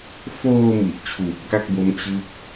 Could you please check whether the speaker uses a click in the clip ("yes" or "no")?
no